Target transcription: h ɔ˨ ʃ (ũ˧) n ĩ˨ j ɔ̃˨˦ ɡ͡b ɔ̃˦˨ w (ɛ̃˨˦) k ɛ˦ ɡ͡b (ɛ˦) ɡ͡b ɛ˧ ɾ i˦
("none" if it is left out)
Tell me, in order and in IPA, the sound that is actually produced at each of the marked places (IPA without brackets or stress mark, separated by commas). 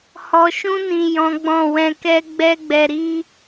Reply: ũ˧, ɛ̃˧, ɛ˦